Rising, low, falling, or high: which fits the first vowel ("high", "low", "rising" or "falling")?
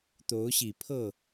rising